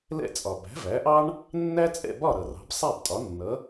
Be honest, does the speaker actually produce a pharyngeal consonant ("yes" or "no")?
no